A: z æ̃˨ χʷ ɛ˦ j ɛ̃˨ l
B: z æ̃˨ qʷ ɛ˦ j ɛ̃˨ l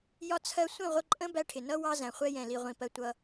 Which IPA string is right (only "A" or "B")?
A